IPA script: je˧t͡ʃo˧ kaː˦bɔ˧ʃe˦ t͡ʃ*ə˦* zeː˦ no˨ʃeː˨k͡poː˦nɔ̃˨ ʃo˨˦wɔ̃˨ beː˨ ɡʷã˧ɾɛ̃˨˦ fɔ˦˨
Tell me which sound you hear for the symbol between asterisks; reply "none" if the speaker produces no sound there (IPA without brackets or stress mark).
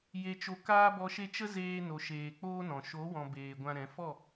ə˧